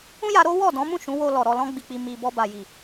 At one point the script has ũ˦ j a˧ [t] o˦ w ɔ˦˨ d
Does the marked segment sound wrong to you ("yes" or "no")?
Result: yes